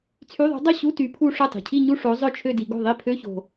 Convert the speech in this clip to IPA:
t͡sʰy˧˥˧ðˤo̤˧˥dˤœ˥˧ ɕu˧˥˧ ty˧˥pʰu˥˧ ʂœ˥˩tˤi̤˨˩cʰi˥˧ ɲu˥˧ ʂo˧˥zˤœ˥˧t͡ʃʰø˥˧di˧ ɡo̤˥˩ðˤi˥˧ pʰø˧˥˧ço̤˨˩

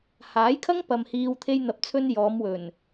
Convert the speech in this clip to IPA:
haː˨˥jkʰɐ˥ŋpɐ˨m hiː˧w t̪ʰe˧jn̪ɐ˨˥p̚t͡sʰɵ˧n jɔː˨˧mwɵ˨˩n

